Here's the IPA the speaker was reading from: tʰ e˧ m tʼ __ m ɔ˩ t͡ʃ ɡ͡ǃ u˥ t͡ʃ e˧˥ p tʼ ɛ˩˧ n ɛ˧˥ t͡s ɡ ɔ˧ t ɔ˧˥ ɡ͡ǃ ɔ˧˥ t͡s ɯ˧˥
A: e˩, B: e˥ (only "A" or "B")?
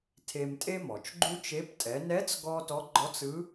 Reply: B